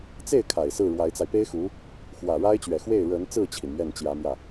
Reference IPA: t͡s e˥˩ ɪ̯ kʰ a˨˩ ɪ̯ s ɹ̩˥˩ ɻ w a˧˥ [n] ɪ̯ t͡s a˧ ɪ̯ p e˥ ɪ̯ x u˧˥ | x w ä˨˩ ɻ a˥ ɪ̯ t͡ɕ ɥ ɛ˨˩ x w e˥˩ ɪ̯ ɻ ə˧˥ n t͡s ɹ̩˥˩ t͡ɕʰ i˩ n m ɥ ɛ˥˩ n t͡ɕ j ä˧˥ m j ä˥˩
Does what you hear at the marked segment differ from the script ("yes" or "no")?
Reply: yes